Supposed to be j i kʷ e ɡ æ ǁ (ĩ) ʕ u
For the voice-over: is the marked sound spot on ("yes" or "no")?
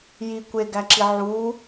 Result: no